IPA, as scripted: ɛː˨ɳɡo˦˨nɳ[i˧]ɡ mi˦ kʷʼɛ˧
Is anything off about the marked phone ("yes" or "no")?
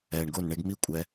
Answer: yes